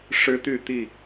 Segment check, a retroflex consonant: present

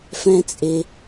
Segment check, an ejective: present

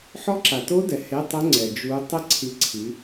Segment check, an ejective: absent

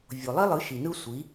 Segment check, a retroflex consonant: absent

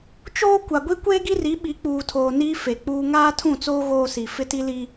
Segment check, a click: absent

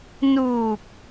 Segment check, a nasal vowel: absent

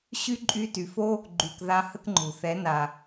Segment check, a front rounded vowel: present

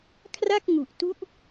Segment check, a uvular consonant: absent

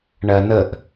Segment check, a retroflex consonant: present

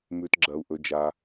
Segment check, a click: present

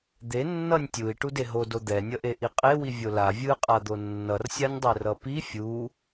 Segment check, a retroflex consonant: present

